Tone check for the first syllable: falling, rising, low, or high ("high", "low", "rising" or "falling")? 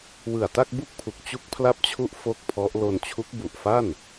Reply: low